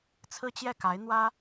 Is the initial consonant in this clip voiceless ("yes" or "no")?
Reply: yes